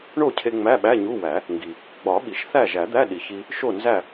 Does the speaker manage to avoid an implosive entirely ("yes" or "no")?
no